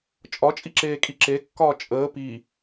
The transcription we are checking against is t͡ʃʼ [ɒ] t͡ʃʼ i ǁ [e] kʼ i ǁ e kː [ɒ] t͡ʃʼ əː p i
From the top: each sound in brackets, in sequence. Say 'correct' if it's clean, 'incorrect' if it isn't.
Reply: correct, incorrect: eː, incorrect: ɒː

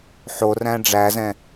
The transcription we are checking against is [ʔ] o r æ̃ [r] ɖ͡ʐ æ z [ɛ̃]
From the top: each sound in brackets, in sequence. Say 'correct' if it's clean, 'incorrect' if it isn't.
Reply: incorrect: ħ, incorrect: none, correct

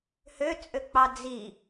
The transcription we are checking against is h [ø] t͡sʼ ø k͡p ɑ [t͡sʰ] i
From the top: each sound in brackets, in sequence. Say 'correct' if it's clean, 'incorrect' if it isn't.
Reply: correct, incorrect: d͡z

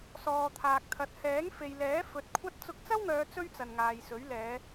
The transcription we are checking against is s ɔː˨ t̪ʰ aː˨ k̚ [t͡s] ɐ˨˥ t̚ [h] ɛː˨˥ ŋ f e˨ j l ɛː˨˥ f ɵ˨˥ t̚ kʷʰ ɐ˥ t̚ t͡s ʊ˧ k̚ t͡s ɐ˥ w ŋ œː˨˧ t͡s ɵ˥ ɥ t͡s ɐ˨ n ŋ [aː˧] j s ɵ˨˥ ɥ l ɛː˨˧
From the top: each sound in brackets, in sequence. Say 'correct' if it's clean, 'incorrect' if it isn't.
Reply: incorrect: t̪ʰ, correct, incorrect: aː˨

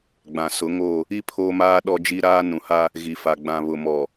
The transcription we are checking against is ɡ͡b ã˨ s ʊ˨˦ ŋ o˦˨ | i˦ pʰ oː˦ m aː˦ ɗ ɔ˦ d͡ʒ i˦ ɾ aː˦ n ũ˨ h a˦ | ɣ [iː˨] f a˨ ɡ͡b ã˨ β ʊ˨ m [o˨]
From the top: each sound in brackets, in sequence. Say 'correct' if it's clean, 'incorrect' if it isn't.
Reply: incorrect: i˨, incorrect: ɔ˨

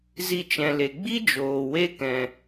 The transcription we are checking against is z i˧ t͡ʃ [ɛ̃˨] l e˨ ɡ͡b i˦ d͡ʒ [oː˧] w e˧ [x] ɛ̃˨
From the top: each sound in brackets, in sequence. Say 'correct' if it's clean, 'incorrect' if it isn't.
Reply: correct, incorrect: oː˨, incorrect: k

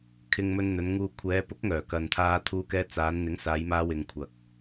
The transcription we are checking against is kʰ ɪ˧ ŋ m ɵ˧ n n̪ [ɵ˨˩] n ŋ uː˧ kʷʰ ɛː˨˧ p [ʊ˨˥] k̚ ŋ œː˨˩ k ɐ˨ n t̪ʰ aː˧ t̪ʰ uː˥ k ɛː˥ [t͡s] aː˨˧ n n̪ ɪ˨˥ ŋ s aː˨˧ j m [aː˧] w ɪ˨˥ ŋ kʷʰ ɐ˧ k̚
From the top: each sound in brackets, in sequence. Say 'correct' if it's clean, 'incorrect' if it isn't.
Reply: incorrect: ɵ˨˧, correct, correct, correct

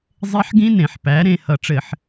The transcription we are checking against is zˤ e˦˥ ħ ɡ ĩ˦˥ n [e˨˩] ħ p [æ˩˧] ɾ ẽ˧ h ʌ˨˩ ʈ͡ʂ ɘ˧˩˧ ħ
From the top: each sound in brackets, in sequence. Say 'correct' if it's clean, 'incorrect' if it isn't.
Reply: incorrect: ẽ˨˩, correct

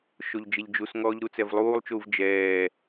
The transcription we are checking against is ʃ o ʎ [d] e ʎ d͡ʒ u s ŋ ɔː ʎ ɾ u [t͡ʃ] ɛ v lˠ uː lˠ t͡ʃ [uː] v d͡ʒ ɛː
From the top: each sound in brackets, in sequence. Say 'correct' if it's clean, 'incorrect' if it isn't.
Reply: incorrect: d͡ʒ, incorrect: t͡s, correct

